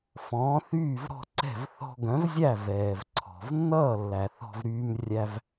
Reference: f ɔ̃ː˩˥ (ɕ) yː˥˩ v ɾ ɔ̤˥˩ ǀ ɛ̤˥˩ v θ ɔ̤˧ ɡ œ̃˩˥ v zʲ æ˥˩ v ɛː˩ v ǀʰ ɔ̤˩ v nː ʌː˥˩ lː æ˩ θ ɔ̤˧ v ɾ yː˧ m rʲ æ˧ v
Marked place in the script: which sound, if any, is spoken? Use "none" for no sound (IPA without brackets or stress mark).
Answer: θ